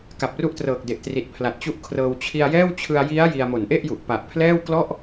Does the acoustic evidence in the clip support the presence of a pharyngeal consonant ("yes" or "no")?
no